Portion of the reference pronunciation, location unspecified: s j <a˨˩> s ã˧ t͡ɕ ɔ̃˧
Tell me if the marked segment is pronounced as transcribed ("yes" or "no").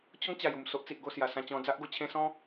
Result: yes